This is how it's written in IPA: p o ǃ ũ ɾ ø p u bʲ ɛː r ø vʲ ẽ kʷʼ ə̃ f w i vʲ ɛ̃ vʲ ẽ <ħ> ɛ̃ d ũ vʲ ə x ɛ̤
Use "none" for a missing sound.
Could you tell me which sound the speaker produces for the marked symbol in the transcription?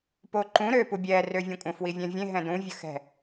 ɦ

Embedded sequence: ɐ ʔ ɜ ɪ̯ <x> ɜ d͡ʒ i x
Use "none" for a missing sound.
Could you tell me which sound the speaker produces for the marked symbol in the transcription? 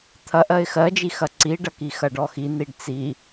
x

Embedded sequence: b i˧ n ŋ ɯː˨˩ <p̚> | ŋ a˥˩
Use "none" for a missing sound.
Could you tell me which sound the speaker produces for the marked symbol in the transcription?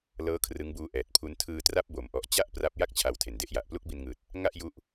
t̚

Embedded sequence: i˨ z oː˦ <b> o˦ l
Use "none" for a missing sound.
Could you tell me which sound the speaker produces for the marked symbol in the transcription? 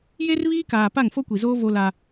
v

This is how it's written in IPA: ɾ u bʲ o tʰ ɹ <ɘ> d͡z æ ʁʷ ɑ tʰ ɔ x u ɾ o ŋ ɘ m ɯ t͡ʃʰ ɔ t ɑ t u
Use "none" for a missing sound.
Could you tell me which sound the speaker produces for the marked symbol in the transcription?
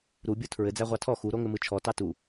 ɘ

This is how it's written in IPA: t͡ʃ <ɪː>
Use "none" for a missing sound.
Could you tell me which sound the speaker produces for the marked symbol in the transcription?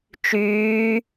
yː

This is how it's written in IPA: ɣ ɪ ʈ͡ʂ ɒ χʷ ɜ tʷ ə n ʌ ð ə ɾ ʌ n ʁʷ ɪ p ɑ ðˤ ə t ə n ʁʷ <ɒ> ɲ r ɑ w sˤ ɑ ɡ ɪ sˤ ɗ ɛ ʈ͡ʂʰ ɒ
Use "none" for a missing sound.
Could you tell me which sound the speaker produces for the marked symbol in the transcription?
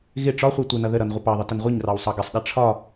ʌ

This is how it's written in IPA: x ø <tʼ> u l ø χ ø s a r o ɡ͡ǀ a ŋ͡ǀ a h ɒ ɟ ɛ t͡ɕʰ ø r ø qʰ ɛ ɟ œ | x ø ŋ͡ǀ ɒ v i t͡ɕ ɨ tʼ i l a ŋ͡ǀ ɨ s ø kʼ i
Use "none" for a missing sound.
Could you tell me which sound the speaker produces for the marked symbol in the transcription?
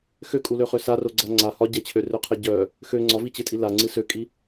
kʼ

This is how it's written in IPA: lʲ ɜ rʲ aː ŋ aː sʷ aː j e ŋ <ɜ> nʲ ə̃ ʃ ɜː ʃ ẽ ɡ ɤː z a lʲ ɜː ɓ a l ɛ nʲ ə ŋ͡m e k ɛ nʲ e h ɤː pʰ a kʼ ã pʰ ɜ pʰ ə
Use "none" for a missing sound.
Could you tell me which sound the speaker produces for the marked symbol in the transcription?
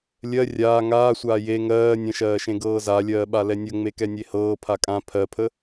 ɜː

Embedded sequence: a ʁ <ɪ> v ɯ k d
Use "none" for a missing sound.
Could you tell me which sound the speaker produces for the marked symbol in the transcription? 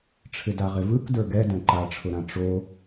ɪ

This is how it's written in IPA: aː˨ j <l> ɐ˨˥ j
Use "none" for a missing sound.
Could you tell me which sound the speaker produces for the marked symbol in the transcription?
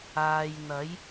n̪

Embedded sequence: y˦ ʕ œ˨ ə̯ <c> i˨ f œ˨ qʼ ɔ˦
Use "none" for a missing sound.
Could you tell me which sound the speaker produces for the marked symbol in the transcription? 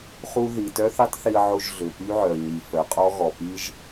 ɲ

